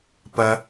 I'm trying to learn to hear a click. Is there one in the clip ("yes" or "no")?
no